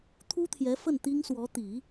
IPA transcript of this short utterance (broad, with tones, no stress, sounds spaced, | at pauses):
t̪ʰ u˥ t̪ʰ j ɛ˧˥ f ə˥˩ n t̪ i˥ ŋ s w ɔ˧˥ t̪ i˨˩˦